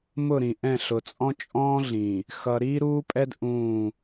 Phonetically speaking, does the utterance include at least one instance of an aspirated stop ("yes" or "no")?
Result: no